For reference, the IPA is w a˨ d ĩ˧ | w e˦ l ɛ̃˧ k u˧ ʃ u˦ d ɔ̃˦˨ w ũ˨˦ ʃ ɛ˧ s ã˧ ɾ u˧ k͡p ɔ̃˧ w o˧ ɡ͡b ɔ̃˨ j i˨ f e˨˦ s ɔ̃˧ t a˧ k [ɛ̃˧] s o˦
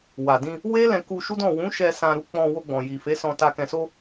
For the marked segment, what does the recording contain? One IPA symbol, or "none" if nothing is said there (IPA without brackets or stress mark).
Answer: ɛ̃˧